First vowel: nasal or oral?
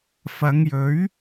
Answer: oral